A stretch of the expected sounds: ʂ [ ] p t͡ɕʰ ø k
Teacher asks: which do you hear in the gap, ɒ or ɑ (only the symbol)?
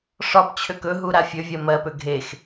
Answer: ɒ